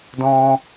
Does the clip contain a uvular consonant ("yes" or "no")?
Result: no